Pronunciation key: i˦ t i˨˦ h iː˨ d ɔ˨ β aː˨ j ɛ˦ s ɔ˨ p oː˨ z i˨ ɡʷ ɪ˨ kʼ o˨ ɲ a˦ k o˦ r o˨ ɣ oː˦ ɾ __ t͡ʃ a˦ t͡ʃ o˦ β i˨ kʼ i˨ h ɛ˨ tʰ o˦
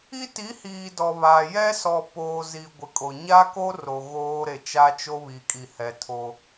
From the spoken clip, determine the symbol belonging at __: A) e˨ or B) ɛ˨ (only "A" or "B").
A